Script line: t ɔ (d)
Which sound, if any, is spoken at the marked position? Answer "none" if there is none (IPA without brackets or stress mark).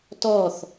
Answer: θ